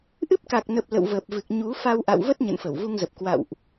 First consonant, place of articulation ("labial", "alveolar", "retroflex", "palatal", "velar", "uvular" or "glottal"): glottal